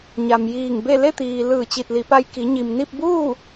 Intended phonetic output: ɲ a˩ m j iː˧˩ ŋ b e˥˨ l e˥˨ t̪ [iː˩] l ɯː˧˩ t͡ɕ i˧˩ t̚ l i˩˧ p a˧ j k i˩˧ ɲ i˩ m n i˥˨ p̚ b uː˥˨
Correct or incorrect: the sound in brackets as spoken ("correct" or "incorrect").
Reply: correct